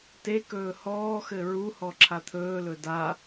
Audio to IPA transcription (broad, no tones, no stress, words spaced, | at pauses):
tekɵː hɔːxɘ ɹu hɔǁʰat̪ʰɵːlɵ da